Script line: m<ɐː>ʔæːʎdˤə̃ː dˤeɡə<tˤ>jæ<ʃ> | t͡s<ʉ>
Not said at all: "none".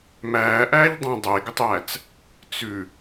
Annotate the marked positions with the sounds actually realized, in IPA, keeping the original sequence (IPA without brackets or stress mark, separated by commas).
æː, tˤ, t͡s, ʉ